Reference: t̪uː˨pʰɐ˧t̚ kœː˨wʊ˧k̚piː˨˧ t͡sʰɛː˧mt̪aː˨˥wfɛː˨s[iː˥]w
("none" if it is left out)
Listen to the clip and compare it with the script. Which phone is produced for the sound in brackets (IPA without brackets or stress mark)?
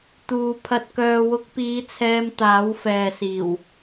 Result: iː˨˩